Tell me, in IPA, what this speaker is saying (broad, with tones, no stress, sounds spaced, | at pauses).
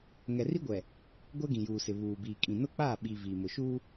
ŋ ɛ˨ r i˦ ɡʷ ɛ˨ | ɡʷ ɛ˦ ɡ ĩ˨ j uː˨ s ɪ˨ β uː˨ b iː˨ kʼ ĩ˨ n ʊ˦ k͡p aː˦˨ ɓ iː˨ v iː˨ m ʊ˨ ʃ uː˦